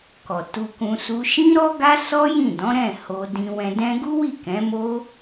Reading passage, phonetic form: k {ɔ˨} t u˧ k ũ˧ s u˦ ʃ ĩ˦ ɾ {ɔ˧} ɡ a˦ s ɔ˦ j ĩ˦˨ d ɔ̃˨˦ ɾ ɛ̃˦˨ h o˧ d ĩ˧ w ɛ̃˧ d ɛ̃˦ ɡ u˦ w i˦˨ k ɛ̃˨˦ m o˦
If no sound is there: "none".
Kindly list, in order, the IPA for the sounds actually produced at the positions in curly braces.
ɔ˨, ɔ˦

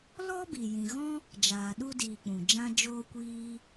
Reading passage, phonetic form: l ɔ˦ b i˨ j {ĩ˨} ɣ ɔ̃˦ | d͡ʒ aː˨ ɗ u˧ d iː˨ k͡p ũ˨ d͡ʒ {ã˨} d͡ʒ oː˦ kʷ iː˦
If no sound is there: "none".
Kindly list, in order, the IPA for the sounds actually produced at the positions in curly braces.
ĩ˨, ã˦

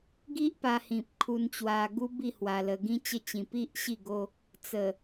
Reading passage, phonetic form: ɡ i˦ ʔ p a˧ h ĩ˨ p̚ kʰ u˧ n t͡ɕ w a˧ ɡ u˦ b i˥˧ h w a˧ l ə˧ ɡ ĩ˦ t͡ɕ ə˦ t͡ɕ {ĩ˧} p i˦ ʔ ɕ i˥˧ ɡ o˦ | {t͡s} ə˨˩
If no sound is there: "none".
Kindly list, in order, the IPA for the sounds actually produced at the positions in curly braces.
ĩ˧, t͡s

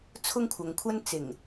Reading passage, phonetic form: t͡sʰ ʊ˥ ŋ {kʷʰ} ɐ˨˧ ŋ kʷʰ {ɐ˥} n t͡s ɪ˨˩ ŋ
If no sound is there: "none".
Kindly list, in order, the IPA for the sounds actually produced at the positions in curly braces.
kʷʰ, ɐ˥

